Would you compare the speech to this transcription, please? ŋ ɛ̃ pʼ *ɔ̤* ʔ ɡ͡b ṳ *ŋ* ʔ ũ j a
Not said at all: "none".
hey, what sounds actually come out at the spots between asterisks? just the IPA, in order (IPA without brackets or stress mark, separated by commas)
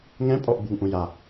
ɔ, ŋ